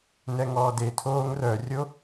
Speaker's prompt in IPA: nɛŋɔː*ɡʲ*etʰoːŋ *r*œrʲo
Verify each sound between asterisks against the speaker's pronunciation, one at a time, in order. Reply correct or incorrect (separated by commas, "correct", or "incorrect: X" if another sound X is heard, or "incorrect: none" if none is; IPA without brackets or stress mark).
incorrect: d, correct